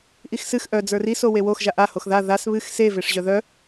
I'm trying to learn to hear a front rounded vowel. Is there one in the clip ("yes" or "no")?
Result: yes